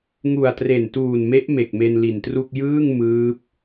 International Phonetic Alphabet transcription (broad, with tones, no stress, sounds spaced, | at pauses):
ŋ u˨˩ a̯ t r e˨˩ n t uː˨˩ n m e˦˥ ʔ m e˨˩ k̚ m e˧ n l i˨˩ n t r u˥˩ k̚ j ɯː˥˩ ŋ m ɯː˦˥ p̚